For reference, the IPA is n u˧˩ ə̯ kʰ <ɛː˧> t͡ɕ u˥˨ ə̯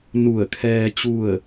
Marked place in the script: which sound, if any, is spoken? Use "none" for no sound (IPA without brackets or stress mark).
ɛː˧